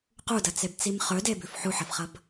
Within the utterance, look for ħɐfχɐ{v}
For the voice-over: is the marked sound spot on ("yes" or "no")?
no